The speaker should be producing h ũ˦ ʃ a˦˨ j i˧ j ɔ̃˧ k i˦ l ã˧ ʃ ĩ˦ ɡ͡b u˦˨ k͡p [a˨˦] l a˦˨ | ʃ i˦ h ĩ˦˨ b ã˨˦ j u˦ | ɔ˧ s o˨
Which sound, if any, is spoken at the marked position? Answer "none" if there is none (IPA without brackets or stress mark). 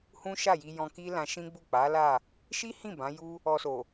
a˨˦